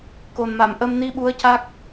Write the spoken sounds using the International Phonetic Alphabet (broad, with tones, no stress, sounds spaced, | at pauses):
k o˨˩ n m a˨˩˨ m ʔ ə˧ m n i˧ ɓ u˧˥ ə̯ c a˦˥ k̚